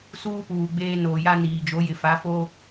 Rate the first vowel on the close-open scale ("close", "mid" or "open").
close